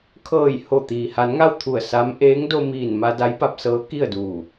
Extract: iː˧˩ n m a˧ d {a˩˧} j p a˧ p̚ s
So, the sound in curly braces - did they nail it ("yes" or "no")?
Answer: no